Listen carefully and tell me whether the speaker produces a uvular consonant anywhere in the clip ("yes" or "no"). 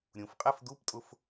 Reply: yes